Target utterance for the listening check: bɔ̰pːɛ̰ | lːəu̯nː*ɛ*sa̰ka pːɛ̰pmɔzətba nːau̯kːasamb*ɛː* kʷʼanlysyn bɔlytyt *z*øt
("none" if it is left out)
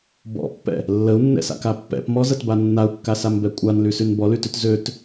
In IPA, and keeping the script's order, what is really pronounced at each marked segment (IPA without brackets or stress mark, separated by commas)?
ɛ̰, ɛ, z